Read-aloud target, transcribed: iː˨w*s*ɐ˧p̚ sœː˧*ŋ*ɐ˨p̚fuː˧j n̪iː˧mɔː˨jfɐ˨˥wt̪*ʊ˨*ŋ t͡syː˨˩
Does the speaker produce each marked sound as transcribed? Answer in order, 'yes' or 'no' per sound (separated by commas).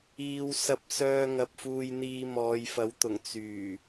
yes, yes, no